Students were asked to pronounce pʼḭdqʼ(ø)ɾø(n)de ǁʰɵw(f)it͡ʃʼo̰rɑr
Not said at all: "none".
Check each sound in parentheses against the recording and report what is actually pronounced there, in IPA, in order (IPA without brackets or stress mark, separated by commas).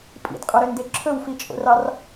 ɵ, n, f